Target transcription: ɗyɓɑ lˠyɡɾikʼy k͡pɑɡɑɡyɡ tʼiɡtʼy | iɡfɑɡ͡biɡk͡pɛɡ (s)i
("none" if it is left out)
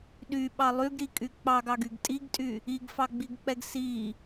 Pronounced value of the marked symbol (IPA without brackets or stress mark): s